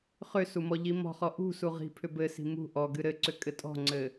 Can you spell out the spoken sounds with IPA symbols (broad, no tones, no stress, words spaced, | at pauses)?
χʏsu mɔʎimɔ̤χɔ ʔṳ suʁi̤pʰʏ bɘsi̤ mṳ ʔɔɡɨ ɾɘǀʏ kʼɘtʼɔ̤ŋ͡ǀɘ